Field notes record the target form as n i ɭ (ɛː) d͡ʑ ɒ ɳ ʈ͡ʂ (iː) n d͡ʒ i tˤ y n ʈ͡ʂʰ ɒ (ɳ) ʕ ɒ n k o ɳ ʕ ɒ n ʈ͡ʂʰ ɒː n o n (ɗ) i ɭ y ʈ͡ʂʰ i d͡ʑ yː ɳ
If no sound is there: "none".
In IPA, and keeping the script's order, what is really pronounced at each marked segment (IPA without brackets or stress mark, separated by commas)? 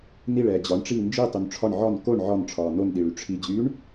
ɛː, iː, ɳ, ɗ